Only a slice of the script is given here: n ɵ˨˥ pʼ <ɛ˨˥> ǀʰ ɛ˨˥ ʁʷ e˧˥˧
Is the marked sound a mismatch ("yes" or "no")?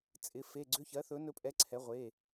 no